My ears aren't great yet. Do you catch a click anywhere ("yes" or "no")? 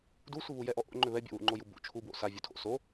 yes